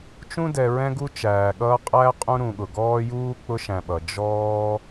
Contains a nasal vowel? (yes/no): yes